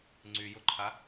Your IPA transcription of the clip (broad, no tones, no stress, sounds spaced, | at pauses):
ŋ͡ǀ y j ʊ ǃʰ a